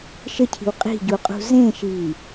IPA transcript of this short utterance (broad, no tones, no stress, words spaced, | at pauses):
ʃəcʰi̤w qʼi̤ɟuqʼṳ zẽːʃiː